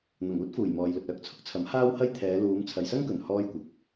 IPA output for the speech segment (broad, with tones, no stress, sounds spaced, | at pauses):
n̪ ɐ˨˩ ŋ uː˥ t̚ f uː˨˩ j m ɔː˨ j l ɵ˨ t̚ œː˧ k̚ t͡sʰ ʊ˥ k̚ t͡sʰ ɐ˨˥ m h aː˥ w h ɐ˥ j t̪ʰ ɛː˨˧ l uː˨˧ m t͡sʰ ɐ˨ j s ɐ˥ ŋ k ɵ˨˩ n h ɔː˥ j kʷ ɐ˨ k̚